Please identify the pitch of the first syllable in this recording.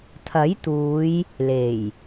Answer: rising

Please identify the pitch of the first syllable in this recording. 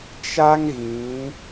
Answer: high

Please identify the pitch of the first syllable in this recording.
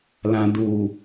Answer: low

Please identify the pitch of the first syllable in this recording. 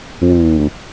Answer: low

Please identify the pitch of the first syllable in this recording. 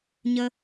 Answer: high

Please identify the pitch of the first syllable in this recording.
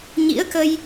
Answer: rising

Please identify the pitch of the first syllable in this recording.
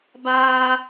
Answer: high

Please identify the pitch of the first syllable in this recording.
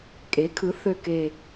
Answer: rising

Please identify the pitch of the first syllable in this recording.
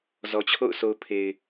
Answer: low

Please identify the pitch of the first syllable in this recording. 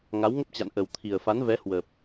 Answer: rising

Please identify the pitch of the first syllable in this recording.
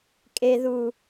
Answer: low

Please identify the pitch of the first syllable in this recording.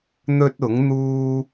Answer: high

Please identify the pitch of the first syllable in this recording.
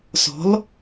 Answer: rising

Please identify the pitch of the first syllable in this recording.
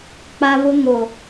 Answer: high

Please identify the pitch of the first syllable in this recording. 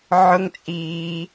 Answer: high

